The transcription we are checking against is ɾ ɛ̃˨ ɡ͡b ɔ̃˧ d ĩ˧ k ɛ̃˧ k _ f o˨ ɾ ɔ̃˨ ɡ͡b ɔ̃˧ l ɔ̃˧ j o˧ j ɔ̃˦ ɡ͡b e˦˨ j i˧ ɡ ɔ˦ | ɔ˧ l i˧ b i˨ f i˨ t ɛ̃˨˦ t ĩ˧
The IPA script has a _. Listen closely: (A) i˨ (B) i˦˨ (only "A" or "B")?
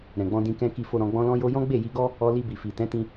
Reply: A